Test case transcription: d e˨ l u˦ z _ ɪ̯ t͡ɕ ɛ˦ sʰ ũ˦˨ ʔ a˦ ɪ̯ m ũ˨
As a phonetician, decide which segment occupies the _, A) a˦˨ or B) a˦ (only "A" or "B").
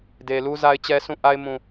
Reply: B